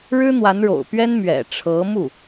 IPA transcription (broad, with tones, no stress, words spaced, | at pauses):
ɻɻ̩˥n̪wa˧˥nɻo̰˨˩ʊ̯pɥɛ˥n mɥɛ̰˨˩ʈ͡ʂʰɤ˧˥mu˥˩